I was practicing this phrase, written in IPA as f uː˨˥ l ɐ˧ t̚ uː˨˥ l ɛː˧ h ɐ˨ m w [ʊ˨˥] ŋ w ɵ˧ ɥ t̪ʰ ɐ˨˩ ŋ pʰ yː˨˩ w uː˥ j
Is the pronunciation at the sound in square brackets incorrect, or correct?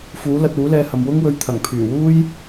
incorrect